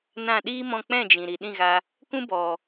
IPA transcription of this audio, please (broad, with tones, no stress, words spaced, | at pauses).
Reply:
nã˦˨ ɗiː˦mɔ̃˧ k͡pɛ̃˦˨d͡ʒĩ˨ ɾi˨ɗĩ˦˨ɣa˧ | kũ˦bɔ˨